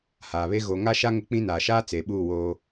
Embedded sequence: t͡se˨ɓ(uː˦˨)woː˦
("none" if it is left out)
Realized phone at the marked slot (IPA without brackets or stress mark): uː˦˨